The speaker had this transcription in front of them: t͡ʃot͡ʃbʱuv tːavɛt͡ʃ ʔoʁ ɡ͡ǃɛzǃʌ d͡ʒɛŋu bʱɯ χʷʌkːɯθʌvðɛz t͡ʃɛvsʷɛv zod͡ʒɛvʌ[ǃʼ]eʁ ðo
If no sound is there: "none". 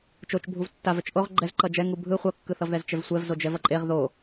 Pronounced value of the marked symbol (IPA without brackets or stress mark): ǃʼ